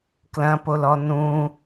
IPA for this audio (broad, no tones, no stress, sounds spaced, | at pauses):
k l ɐ̃ p o l ɔ n ũ